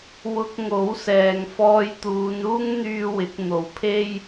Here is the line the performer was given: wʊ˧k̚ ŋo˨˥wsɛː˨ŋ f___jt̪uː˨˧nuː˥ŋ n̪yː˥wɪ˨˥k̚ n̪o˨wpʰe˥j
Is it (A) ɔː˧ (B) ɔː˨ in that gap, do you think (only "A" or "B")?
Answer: A